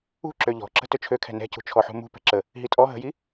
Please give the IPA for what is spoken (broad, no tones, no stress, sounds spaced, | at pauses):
ṳ ǁ ø ʎ ɔ̤ ǁ ə̤ t ø t͡ʃʰ ø kʰ ɛ̤ n ɛ̤ c ṳ t͡ʃʰ ɔ ħ ṳ m ṳ p ɛ̤ ǁ ə | ɦ i tʼ ɔ ɦ ə̤ j i